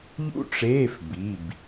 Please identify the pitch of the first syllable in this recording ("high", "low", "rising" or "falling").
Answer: high